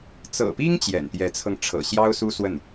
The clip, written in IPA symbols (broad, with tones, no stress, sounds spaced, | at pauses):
t͡s ɤ̰˨˩ p i˥ ŋ t͡ɕ j ɛ̰˨˩ n t̪ j ɛ˧˥ t͡sʰ ɤ˧ ŋ ʈ͡ʂʰ ɤ̰˨˩ ɕ j ɑ˥ ʊ̯ s u˥ s w ə˥˩ n